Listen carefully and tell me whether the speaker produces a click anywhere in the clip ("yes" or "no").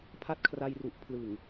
no